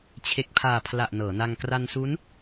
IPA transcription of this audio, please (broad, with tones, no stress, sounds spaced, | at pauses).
t͡ɕʰ e˨˩ k̚ pʰ aː˨˩ pʰ l a˨˩ ʔ n ɤː˩˦ n a˧ ŋ k r a˧ n s u˦˥ n